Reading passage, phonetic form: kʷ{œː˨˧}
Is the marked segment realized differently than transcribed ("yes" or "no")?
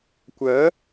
yes